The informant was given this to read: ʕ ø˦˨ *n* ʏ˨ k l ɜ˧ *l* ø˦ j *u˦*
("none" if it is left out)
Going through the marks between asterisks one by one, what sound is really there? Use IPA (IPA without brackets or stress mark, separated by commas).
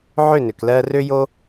n, r, o˦